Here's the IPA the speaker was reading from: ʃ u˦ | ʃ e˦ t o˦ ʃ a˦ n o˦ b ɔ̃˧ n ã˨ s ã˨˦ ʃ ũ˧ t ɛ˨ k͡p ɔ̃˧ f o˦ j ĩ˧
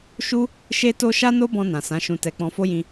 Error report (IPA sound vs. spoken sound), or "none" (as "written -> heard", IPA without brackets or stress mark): ɛ˨ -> ɛ˧